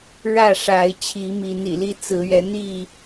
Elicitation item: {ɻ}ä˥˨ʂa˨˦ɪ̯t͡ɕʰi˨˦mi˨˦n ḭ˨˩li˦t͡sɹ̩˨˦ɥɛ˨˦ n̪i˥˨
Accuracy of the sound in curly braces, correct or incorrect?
correct